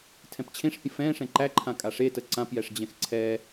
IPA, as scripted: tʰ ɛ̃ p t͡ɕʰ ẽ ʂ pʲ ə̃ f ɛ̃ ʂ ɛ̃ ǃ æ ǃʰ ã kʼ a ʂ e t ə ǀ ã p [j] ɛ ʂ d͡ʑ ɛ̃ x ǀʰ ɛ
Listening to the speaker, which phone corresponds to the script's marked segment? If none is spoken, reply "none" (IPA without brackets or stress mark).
j